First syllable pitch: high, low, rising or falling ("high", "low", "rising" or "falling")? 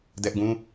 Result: high